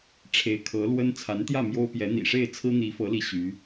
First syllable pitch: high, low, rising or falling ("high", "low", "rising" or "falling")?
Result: rising